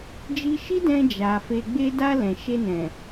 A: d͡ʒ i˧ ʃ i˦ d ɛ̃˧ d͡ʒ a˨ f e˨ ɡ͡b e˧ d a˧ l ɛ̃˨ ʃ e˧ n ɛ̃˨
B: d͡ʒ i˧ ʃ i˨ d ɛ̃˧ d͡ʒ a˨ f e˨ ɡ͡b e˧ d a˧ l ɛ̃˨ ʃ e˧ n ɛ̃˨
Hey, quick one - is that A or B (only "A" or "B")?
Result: A